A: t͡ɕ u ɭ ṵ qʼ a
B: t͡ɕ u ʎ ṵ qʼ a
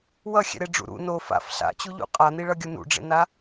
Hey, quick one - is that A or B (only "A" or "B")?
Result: B